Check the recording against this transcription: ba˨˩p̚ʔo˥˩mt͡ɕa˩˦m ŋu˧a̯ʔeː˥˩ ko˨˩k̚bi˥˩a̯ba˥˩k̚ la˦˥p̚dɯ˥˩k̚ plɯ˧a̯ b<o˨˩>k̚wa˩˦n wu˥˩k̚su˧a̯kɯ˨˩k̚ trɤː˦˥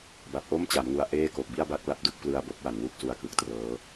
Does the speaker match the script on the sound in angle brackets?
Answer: no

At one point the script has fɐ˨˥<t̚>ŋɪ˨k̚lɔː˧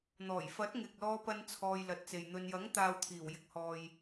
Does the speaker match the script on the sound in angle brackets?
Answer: yes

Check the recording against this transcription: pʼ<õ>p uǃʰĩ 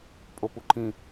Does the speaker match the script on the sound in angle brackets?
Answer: no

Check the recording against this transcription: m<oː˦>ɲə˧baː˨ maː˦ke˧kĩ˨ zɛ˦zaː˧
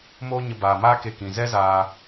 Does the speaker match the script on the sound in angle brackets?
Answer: yes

